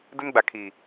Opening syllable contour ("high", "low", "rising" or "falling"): high